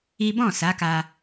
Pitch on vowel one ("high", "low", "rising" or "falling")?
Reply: high